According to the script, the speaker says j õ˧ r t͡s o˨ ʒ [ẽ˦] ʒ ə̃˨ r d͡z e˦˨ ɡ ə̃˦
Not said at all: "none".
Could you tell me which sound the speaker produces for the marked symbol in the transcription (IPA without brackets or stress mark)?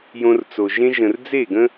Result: ẽ˦